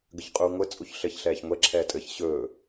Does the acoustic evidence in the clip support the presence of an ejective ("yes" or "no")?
yes